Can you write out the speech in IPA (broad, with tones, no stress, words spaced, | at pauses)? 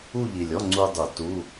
u˥˧ʎi˨˩lʲɔ˧˥˧ ŋ͡ǀu˧dˤu˨˩˦ tu˧˥˧